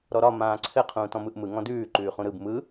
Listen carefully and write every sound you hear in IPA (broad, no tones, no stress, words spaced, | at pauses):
ɾɔɾɒ mãːǀʰɘ qʰũːtɔ̃mɯʔmɯ ŋɔ̃dʉː ǃʉːχũɾɯb mɯ